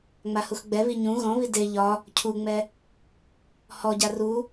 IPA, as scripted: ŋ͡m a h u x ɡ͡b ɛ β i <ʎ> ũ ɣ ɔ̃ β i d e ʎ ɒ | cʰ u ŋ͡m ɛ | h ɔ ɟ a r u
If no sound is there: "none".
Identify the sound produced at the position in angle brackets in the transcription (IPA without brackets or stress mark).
ɲ